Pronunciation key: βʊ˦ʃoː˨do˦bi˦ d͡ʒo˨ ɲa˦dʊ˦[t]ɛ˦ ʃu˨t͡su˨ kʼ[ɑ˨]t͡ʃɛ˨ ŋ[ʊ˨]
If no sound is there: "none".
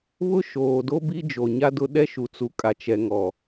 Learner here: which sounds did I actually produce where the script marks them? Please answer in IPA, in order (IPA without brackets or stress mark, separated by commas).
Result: ɗ, a˨, ɔ˨